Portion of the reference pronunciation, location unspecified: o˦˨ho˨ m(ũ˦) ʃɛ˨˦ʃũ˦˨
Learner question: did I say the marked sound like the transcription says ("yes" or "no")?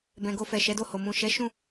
no